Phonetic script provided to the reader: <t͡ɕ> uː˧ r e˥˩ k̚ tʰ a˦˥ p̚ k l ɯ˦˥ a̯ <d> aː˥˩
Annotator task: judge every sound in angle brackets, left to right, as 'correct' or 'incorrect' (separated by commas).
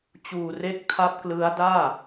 correct, correct